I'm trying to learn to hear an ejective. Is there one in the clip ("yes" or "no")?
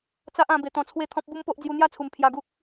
no